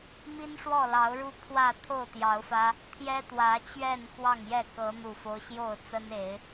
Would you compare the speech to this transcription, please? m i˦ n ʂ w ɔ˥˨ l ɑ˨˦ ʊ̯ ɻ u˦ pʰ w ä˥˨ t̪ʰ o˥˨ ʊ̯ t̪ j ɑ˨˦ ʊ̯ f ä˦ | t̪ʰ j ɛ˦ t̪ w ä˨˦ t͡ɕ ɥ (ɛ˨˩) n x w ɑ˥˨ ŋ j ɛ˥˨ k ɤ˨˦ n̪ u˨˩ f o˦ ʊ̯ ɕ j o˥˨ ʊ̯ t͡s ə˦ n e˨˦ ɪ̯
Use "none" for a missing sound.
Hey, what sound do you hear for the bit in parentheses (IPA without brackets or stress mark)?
ɛ˥˨